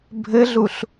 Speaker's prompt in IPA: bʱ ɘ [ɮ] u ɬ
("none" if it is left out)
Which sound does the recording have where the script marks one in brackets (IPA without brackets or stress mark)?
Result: ɮ